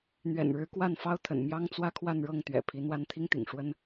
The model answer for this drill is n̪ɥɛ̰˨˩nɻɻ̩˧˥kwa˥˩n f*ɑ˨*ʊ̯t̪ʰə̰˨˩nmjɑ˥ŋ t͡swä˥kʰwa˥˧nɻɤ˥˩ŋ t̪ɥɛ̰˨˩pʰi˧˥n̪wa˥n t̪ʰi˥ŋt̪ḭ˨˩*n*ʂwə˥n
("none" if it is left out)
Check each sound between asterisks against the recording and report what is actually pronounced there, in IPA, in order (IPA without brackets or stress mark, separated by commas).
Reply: ɑ˥, ŋ